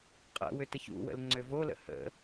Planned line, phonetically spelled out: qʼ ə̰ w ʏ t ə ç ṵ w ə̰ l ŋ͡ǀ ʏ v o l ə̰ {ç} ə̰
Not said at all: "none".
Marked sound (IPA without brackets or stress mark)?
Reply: h